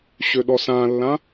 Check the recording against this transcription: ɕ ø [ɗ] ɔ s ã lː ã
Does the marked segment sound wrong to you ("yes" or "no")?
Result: no